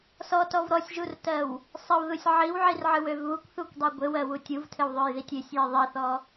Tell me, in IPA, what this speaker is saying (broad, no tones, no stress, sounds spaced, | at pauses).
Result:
s ɔ t ɔ v ɾ ɔ sʲ ʒ u r t ɜ w | sˤ ɘ w ð u sʲ ʕ i w ʕ i r ʕ ɨ w ø v β u kʷ θ u kʷ dˤ ɛ ɡʷ ɘ w ɜ w u tʲ u v tʰ ɘ w ðˤ ø j ð i tʲ ø sʲ j ɘ ðˤ i θ ɔ